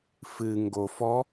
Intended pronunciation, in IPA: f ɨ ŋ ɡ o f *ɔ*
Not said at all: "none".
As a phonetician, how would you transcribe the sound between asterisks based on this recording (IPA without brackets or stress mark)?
ɔ